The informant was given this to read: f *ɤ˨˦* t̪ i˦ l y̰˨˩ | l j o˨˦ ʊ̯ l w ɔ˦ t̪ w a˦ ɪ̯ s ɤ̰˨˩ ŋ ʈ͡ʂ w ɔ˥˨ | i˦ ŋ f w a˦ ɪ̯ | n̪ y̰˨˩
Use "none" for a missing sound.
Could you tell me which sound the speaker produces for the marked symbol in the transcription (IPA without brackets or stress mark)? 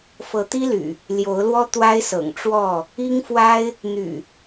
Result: ɤ˨˦